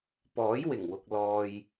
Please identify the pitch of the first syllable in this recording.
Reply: rising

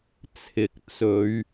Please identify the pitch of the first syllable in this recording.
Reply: rising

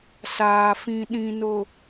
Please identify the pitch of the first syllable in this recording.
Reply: low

